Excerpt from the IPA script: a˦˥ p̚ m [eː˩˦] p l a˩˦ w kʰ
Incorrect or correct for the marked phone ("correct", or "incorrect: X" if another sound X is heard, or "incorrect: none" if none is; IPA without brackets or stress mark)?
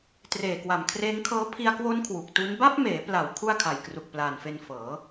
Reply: correct